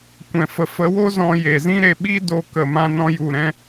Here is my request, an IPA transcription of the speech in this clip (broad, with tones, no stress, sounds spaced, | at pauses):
kʷ ɛ̃˨ f ə˨ f ə˨˦ w o˦ z ɔ̃˧ j e˨ z ĩ˦ ɾ e˧ ɓ i˦ d o˧ k ə˨ m ã˧ n ɔ̃˧ j u˧ ɾ ɛ̃˦